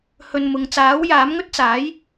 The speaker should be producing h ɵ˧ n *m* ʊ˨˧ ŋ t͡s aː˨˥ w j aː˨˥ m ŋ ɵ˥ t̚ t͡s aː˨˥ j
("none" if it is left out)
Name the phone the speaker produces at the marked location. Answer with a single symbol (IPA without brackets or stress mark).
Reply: m